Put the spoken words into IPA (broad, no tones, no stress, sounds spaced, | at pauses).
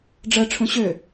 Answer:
ɖ͡ʐ ɜ ʈ͡ʂʰ ũ ɕ ø